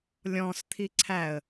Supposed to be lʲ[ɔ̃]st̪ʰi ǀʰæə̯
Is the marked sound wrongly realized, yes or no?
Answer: no